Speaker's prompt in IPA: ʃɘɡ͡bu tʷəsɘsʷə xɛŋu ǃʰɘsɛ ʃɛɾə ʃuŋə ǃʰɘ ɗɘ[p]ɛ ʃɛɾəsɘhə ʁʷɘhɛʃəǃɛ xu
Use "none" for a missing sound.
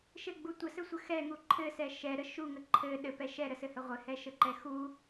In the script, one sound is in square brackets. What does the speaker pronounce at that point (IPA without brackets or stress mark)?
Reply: p